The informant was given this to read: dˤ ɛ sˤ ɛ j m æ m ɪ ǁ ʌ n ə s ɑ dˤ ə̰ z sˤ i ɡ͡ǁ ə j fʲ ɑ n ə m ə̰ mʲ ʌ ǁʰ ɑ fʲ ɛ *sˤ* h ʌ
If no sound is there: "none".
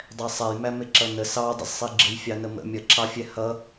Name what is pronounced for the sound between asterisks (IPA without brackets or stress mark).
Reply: none